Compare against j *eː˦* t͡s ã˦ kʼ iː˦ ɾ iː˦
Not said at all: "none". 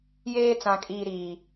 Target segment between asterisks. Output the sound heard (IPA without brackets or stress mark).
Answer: eː˦